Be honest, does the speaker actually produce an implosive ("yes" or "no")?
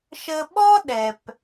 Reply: yes